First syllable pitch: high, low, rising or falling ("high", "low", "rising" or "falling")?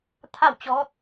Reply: falling